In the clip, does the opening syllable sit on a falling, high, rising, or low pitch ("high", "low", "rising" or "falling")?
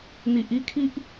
low